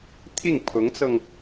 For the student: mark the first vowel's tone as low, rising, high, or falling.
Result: falling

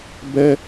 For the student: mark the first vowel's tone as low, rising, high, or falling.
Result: high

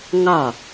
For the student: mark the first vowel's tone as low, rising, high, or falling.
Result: falling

